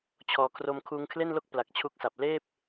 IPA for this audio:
t͡ɕʰ ɔː˧ kʰ r o˧ m kʰ uː˧ ŋ kʰ l e˥˩ n l o˥˩ k̚ p l a˨˩ k̚ t͡ɕʰ u˦˥ k̚ s a˨˩ p̚ l eː˥˩ p̚

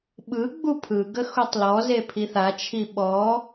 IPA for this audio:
ɓ ɯ ɡ͡b u pʰ ɯ ɡ ə x u tˤ l ɔ z e pʰ i θ a t͡ʃʰ i ɓ ɔ

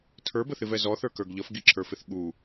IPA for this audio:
tʰ ə˞ b ə θ ɪ v ɛ z ɔ θ ə˞ k ə˞ ɡ ʎ ʌ f ɡ i ǁʰ ə˞ f ɪ θ ɠ u

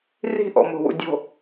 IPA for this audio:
r i̤ ʔ ɔ̰ m o̤ w ṵ dʲ o̤

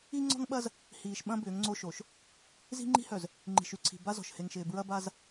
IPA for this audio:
i˦ ŋ͡ǀ ɔ̤˦ ŋ ɓ ɐ˦ z | h iː˨ ʃ ɓ ɐ̃˦ b ʏː˨˦ ŋ ŋ͡ǀ o˦ ʃ o˨ ʃ | z i̤˦ ŋ͡ǃ i̤˦ h œ˨ z | ŋ͡ǃ i̤˨ ʃ y˦ ǀʰ i̤˨ b a˦ z ɔ̤˨ ʃ h e˨ ŋ ʃ ɪː˨ b ɹ ɐ˦ b a˦ z

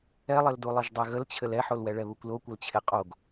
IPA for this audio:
ɛ lˠ ɘ l d u lˠ ɘ ʒ dˤ e ɣ ə l t͡ɕʰ ɘ l ɛ ħ o l w ɛ ɭ ɛ β u kʷ l o kʷ ə l t͡ɕʰ e qʼ o ɡ

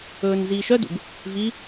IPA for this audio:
ɵː n z iː ʃ œ d ṵ ɡ | v i

